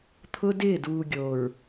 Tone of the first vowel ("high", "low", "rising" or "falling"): high